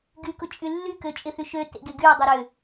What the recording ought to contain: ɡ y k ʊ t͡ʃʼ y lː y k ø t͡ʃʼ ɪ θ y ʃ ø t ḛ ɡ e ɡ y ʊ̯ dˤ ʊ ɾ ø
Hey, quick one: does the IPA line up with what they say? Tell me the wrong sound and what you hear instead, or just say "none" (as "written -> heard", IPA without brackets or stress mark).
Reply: none